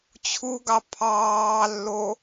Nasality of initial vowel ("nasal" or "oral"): oral